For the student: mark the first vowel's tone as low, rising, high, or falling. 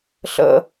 high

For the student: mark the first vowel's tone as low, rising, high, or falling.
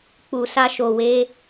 low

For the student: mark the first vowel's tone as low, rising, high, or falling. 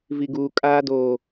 low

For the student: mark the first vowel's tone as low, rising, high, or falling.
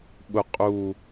low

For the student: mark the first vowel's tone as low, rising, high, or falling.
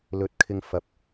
low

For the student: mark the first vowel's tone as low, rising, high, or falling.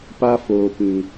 high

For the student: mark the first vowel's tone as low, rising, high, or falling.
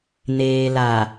low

